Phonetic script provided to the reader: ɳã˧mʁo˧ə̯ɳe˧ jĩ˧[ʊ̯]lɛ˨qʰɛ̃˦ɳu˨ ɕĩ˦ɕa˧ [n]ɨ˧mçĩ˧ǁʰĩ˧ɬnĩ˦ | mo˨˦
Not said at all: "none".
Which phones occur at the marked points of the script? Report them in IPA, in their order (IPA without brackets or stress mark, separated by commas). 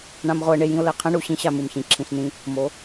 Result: ʊ̯, m